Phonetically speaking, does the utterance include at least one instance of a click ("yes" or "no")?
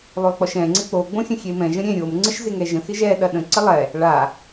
yes